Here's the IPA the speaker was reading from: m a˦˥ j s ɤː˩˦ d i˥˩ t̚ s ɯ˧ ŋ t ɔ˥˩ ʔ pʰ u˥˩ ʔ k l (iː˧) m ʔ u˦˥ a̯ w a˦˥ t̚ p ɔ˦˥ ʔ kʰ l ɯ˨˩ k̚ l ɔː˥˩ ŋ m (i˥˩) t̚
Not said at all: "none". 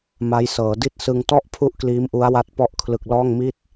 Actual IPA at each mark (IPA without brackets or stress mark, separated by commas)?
iː˦˥, i˥˩